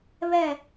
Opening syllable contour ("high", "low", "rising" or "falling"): falling